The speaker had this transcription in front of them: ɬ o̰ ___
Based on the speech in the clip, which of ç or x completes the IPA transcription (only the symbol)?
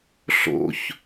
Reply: ç